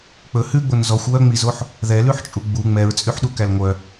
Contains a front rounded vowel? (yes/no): yes